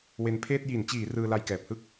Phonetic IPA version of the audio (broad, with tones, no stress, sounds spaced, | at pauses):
w e˧ n pʰ eː˥˩ t̚ j i˩˦ n t͡ɕ iː˩˦ r ɯː˧ l a˧ j k ɛː˨˩ p̚ h ɯ˥˩ k̚